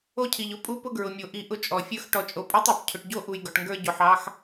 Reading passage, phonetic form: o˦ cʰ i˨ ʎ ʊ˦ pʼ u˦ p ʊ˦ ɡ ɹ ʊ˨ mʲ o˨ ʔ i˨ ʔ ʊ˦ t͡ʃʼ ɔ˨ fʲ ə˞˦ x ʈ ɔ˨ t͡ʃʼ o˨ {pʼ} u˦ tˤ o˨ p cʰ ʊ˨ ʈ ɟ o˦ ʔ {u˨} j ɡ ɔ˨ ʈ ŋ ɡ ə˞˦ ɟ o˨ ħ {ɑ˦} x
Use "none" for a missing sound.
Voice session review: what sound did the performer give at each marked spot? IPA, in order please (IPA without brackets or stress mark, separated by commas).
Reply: pʼ, u˨, ɑ˦